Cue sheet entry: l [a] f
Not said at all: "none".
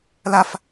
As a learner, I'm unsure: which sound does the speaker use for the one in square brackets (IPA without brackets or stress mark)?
a